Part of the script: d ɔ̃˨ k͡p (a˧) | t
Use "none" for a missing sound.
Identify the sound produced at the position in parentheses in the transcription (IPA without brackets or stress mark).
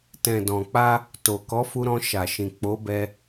a˧